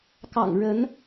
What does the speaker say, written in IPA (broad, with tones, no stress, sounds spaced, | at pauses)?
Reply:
k ɑ̰˨˩ ŋ ɻ ə˨˦ n